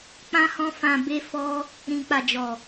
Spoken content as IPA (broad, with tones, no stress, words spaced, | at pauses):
k͡pã˦hɔ̃˦ fã˧be˦fɔ˦ | ɾĩ˨k͡pa˨ d͡ʒɔ˨